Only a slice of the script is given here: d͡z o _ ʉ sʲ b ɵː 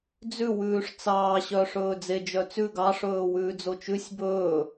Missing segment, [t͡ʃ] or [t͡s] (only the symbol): t͡ʃ